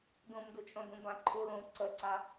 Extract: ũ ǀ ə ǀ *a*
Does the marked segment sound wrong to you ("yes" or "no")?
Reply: no